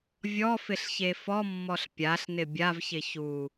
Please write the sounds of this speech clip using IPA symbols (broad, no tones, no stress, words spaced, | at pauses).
vʲɔfɪɬçe fɔmːɔɬ pʲaɬnɪ bʲavçɪ çu